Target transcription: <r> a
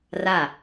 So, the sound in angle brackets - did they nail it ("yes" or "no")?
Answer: yes